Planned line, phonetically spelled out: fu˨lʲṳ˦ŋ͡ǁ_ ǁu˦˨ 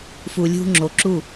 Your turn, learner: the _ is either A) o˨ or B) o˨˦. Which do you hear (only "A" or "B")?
B